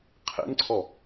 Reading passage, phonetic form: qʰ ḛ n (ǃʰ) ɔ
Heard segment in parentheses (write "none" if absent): ǀʰ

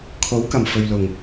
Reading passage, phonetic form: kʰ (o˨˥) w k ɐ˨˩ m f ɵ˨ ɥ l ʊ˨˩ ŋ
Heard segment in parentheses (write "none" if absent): o˨˥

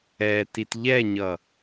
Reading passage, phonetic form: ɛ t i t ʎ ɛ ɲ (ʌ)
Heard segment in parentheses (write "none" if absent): ʌ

